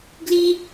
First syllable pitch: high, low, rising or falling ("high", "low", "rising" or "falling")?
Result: high